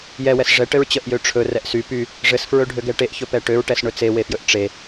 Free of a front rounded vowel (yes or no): no